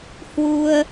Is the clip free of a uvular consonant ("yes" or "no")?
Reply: yes